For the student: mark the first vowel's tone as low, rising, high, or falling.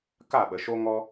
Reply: falling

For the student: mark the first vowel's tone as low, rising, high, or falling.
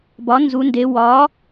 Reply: rising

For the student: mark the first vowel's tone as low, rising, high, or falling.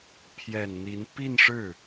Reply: low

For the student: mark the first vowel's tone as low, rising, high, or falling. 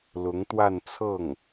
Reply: rising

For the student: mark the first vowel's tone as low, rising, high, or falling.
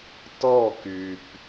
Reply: falling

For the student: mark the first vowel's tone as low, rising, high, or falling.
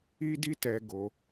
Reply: high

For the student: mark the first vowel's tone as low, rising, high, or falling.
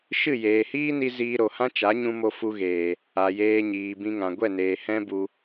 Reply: falling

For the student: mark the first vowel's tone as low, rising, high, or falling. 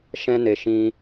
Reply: high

